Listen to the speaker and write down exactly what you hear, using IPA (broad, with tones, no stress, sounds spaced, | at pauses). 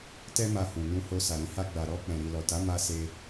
t ɛ˦ m a˧ h ũ˨ n ũ˧ h o˧ s a˨ ɾ ĩ˧ h a˧ ɡ͡b a˨ ɾ ɔ˧ k͡p ɛ̃˨ ɾ i˨ l ɔ˨ t a˨˦ m a˧ s e˧